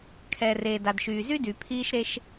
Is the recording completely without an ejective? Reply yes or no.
yes